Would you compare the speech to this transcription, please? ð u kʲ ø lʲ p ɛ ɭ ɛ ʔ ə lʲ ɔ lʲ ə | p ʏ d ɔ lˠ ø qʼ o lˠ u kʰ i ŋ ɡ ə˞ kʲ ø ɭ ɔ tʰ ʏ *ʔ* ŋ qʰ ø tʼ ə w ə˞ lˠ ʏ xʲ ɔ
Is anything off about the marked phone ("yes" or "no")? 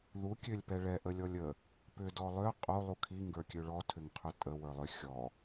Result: yes